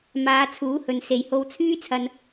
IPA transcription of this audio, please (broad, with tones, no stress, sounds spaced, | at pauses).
m aː˨˧ t͡sʰ uː˨˥ h ɵ˨ n s e˨ j h o˧ w t͡sʰ yː˥ t͡sʰ ɐ˧ n